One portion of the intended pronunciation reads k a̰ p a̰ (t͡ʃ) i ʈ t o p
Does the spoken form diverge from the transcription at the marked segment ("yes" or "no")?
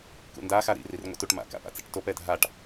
yes